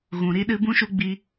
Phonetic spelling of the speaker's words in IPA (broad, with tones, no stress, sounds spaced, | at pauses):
ɣ ũ˨ ɾ i˧ ɗ ɨ˧ b ũ˦ ʃ u˦ ɡ͡b i˧